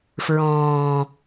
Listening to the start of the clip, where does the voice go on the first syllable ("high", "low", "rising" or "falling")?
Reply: low